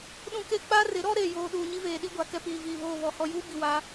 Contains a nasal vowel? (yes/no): yes